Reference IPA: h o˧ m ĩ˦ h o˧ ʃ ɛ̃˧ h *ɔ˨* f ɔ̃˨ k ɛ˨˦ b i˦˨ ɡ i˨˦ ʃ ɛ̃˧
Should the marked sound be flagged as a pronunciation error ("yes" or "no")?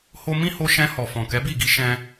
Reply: no